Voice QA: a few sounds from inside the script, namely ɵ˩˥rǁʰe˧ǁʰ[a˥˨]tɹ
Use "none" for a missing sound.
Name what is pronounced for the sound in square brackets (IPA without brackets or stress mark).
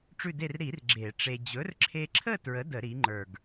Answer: ə˥˨